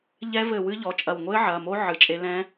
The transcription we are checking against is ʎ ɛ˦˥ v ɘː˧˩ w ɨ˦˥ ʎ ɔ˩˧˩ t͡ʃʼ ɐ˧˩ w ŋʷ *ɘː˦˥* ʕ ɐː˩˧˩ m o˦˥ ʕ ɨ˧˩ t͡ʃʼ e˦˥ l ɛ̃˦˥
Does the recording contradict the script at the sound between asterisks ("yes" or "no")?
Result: no